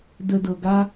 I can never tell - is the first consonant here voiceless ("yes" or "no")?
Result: no